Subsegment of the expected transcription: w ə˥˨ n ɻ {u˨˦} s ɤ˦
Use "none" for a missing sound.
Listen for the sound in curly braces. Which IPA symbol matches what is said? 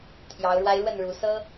u˨˦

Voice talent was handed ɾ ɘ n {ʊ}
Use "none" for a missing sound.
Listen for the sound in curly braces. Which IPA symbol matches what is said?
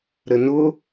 ʊ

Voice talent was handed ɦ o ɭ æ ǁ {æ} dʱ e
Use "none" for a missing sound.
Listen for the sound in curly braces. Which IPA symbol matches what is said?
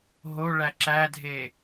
æ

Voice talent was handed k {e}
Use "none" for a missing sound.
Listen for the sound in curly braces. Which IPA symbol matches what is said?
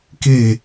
e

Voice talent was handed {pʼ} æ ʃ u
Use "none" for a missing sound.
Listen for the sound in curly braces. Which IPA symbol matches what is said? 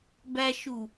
b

